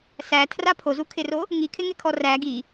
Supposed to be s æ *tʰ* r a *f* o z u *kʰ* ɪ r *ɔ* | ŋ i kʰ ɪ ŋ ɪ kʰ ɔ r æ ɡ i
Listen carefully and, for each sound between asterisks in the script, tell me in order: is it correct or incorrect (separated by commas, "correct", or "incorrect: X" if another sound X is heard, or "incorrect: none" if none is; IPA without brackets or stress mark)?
correct, incorrect: pʰ, correct, incorrect: o